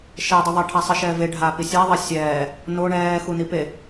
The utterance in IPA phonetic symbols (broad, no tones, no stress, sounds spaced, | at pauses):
ʃ ɛ dˤ i ðˤ a ʈʰ a sˤ i ʃ ɛː v e ɖʱ a p i sʲ a ðˤ ɐ sʲ ɛː | n o ɳ ɛː x u n i p e